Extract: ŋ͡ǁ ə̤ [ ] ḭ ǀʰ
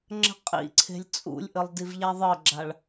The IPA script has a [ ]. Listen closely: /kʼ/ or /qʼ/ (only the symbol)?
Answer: qʼ